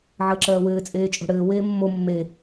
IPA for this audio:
ʕ əː ǁ ɜː w ɘː t͡sʼ eː t͡ʃʼ o̤ ɽ ɘː w eː mː o mː e

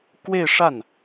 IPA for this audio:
k w e˥˧ ɪ̯ ʂ a˥˩ n

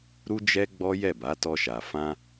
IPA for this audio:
ɾ u˧ d͡ʒ ɛ˧ ɡ͡b ɔ˦ j ɛ˦˨ b a˨˦ t ɔ˧ ʃ a˨ f ã˧

